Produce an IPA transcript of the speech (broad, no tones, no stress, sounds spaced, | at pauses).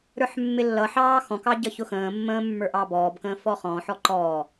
ɾ ə˞ ħ mː ɪ lː ʌ ħ ɑː x ɔ̃ k ɑ ɟ ʌ ç ʊ x ə̃ː mː ə̃ː mː ə˞ ʔ ɑ b ɔː b k ə̃ː f ɔ χ ɔ̃ ħ ɔ ǃ ɔ